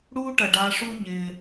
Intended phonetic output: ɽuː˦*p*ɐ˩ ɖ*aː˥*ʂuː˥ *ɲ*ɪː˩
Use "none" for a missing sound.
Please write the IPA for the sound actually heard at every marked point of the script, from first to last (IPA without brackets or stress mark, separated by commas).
ʈ, aː˨, ɲ